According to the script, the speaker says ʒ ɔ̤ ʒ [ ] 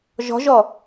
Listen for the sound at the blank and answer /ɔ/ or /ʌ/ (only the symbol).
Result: ɔ